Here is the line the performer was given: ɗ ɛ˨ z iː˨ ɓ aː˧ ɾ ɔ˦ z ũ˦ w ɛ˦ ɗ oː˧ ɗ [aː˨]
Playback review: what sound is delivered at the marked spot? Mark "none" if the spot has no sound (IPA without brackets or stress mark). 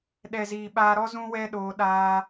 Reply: aː˦